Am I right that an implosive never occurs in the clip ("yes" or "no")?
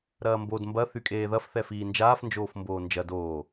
yes